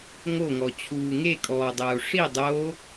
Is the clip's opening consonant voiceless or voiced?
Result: voiced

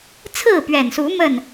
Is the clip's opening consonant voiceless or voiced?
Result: voiceless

